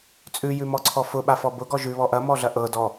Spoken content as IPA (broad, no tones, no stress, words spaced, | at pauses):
t͡sʼʉjʉmɔǀʰɔ fʊɓafɔ bʊɡɔ ʒʉβɔ ʔɐmɔɮɐ ʔɤdɔ